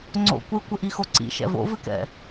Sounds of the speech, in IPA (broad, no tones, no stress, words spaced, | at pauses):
ŋ͡ǀo̰ kʷɨkʷɘʔixo ǀḭʃɛ̰ vo̰vɨkɛ̰